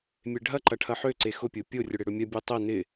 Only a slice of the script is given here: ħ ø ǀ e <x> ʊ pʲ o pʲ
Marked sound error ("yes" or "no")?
no